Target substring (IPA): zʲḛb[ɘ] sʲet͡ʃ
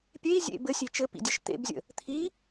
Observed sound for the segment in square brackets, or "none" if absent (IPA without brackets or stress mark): ɘ